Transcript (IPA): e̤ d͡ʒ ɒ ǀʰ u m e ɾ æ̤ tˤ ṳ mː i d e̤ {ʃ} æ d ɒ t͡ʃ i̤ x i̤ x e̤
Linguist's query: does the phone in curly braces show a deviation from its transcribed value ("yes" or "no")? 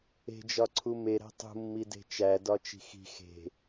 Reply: yes